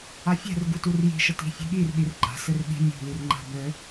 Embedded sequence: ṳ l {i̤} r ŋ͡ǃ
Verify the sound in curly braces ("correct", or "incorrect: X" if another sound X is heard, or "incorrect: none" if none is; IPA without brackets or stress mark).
incorrect: i